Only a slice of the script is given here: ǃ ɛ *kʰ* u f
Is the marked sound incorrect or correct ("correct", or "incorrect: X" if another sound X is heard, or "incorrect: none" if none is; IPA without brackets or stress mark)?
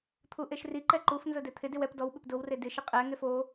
incorrect: ǃ